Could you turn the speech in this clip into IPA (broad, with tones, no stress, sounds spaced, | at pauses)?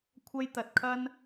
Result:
kʷʰ ɐ˥ j t̪ ɐ˧ t̚ kʰ ɐ˥ n